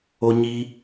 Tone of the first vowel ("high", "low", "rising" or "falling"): high